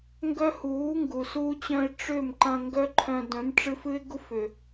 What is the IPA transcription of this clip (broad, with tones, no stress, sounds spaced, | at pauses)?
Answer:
ŋ ɡ œ˦ h uː˨˦ ŋ ɡ u˨ s uː˧ t͡ɕ œ̃˧ ɪ̯ ʈ͡ʂ ʏ˦˨ m ǃ ɐ̃˧ ŋ ɡ œ˦ ǃʰ œ̃˧ d œ̃˨˦ m ʈ͡ʂ ɨ˧ f ɨ˦ ɪ̯ ɡ u˦ f ʏː˨